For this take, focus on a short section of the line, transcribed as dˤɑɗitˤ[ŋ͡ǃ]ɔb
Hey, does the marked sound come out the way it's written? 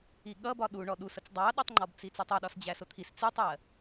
yes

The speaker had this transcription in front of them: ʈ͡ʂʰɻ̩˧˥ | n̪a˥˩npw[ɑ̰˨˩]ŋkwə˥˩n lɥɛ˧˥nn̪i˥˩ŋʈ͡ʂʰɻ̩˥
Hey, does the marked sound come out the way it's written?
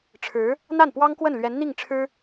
no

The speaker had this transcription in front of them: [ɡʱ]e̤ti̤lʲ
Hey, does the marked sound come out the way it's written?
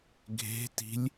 yes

